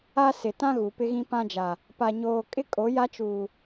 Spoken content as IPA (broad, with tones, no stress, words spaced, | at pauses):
a˦ sɪ˨tã˦ɣu˨ pɪ˦ɣĩ˦pã˦d͡ʒa˨ | pa˨ɲoː˨ kʼɪ˦ kʼo˨˦ja˦t͡ʃuː˨